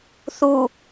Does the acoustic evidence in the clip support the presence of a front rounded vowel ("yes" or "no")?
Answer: no